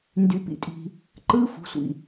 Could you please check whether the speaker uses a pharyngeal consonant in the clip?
no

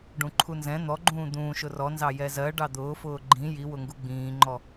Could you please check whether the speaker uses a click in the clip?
yes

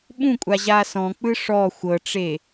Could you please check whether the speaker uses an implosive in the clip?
yes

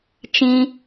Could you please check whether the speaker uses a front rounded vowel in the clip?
no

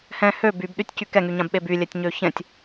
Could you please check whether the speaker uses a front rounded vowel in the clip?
yes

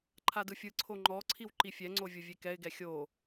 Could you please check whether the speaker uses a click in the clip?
yes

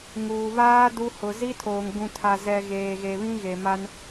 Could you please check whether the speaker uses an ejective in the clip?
no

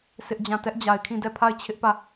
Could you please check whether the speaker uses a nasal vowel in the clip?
yes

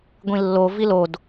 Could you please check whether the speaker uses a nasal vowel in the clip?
yes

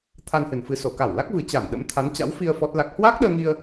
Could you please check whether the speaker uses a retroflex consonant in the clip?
no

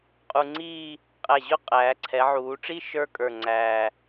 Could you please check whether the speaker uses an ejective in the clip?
yes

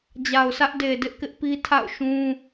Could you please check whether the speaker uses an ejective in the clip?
no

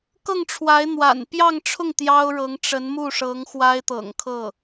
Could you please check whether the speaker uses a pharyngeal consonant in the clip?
no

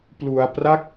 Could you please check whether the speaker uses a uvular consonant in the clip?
no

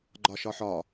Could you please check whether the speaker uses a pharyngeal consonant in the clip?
yes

